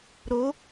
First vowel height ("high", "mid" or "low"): mid